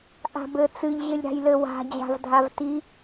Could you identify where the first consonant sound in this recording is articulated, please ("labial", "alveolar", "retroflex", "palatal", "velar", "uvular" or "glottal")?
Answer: glottal